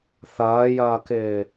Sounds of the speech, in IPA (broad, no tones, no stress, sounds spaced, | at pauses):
θ ɐː j ɐː k ɪː